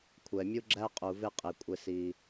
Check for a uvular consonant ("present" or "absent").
present